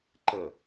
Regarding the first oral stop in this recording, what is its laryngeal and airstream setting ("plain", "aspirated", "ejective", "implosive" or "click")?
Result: click